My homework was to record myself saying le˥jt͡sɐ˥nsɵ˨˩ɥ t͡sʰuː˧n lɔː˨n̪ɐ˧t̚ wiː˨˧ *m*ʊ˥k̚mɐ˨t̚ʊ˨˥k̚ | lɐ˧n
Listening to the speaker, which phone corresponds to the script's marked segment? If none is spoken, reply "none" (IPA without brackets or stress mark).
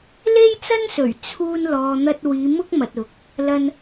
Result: m